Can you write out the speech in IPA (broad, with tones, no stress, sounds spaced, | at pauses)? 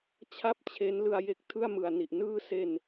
t͡ɕʰ a˥˩ p̚ t͡ɕʰ e˦˥ n l ɯ˧ a̯ j e˦˥ k̚ tʰ ɯ˥˩ a̯ m ɯ˨˩ a̯ n i˨˩ ʔ n ɯː˦˥ s e˧ n